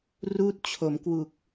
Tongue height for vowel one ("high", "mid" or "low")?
high